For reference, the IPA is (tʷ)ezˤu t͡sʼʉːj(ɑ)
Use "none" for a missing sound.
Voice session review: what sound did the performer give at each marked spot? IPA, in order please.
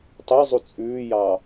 tˤ, ɑ

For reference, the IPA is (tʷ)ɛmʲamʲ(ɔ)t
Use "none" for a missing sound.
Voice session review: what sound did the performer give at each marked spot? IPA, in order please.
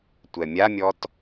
tʷ, ɔ

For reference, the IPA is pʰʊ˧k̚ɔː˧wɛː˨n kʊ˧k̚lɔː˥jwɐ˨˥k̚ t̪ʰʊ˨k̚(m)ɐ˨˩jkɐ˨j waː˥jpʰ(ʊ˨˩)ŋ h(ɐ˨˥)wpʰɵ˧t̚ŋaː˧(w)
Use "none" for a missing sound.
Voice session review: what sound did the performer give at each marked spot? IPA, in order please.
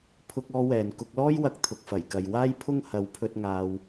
f, ʊ˥, ɐ˨˥, w

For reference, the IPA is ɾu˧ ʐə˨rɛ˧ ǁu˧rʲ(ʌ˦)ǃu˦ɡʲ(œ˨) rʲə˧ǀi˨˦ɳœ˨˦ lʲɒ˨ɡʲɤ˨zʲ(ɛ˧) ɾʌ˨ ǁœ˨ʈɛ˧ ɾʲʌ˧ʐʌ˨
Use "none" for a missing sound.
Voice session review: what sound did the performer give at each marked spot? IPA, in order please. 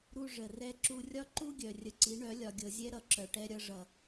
ɒ˦, œ˨, ɛ˧

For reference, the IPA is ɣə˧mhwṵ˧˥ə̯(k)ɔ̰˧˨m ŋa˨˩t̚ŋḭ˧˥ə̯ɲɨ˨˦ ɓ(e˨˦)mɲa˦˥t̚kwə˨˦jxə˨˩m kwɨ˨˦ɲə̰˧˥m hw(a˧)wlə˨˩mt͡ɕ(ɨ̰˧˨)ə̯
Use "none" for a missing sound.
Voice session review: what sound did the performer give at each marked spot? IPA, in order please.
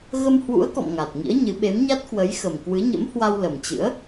k, e˨˦, a˧, ɨ̰˧˥

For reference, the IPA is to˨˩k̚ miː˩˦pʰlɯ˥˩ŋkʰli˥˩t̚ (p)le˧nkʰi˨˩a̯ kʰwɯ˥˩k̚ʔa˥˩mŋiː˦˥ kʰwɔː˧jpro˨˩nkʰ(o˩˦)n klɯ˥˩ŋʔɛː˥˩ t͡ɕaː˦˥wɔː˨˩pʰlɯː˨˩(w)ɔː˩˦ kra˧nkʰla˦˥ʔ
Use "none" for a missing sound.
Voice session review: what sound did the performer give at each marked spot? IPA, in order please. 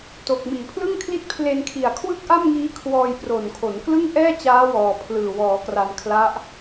pʰ, o˩˦, w

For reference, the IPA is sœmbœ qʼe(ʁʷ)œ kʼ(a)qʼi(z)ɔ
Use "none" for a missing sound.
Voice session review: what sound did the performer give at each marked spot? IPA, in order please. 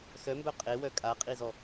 w, a, z

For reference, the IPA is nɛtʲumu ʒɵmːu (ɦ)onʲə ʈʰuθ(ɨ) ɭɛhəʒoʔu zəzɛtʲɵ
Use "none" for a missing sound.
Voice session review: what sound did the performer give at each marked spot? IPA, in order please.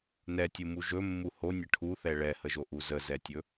h, ɛ

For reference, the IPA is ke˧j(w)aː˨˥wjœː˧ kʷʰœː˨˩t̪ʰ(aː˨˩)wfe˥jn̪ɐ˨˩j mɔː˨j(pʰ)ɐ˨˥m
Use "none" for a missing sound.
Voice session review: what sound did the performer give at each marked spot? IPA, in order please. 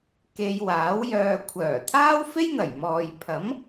w, aː˥, pʰ

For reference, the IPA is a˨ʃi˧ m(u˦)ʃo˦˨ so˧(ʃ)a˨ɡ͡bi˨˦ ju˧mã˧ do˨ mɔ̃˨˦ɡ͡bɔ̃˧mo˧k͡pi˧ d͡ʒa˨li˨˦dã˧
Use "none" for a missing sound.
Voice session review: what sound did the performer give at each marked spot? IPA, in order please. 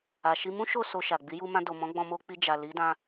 ũ˦, ʃ

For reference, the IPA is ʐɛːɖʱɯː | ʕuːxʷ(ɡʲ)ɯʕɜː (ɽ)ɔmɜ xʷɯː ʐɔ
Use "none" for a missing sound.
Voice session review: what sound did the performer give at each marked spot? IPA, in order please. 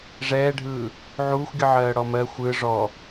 ɡʲ, ɽ

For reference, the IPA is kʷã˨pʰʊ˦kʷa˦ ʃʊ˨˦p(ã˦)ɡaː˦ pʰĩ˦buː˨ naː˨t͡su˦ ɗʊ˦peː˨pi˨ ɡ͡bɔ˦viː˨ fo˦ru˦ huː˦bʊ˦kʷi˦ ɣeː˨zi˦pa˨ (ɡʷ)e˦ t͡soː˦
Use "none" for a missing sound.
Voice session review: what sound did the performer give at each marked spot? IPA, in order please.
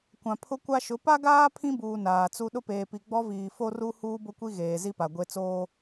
a˦, ɡʷ

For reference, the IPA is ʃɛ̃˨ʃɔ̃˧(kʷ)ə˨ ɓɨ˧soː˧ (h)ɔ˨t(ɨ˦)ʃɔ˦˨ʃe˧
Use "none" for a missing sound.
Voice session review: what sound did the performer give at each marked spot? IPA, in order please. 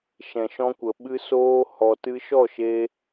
kʷ, h, ɨ˧

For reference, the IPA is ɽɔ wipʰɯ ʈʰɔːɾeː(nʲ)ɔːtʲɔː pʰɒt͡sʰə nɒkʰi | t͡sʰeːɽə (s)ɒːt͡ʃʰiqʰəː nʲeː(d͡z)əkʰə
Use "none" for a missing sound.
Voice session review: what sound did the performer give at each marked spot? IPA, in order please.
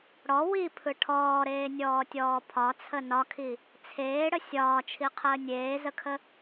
nʲ, sʲ, z

